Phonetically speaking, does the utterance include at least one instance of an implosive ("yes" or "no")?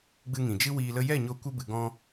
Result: no